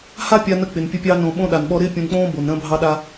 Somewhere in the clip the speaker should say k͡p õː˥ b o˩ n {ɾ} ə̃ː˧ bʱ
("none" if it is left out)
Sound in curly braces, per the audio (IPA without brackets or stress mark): ɾ